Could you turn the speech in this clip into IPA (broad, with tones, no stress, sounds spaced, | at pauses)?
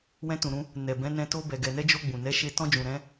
w ɛ̃˦ t ũ˧ ɾ ũ˦ | n ɛ˨ b ɛ̃˨˦ n ɛ̃˧ t o˧ b ɛ˨ ɡ ɛ˨ n ɛ˧ d͡ʒ o˧ ɡ͡b ũ˨ n ɛ˨˦ ʃ e˧ t ɔ̃˧ d͡ʒ ũ˨ ɾ ɛ̃˨˦